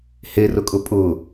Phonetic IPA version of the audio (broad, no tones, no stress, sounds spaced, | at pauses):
h e r ʊ kʼ ʊ pʼ ʊ